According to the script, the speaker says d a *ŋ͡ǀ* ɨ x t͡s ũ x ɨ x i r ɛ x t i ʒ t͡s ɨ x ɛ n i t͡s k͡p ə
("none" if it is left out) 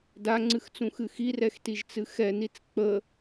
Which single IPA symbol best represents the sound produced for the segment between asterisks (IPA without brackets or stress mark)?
ŋ͡ǀ